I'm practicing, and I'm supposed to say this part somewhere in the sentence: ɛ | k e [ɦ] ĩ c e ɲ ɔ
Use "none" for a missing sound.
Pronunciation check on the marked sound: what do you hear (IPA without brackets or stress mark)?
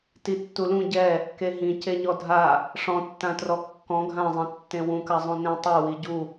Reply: ɦ